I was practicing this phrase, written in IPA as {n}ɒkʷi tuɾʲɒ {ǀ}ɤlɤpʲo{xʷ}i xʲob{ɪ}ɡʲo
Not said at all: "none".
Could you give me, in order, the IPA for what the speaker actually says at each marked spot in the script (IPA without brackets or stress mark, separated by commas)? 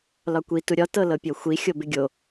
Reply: l, t, xʷ, ɪ